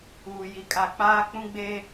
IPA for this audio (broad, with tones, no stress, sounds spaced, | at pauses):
uː˨ j i˨ kʼ a˨ k͡p aː˦ k͡p ũ˦ ɡ͡b e˦